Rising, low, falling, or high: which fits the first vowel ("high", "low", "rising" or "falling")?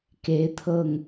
rising